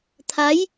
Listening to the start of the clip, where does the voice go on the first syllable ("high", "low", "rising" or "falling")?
rising